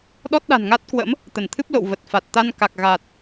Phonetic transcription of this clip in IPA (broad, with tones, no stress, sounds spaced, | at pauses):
ɗ ɔ˦˥ t̚ ɗ a̤˨˩ n ŋ a˦˥ t̚ k w ə̰˧˥ m | t̪ ə˧˩ n t̪ʰ ɨ˦˥ p̚ l o̰˧˨ w v ə˨˩ t̚ f a˨˩ t̚ t̪ a˧ n k a˨˩ k̚ ɣ a˨˩ t̚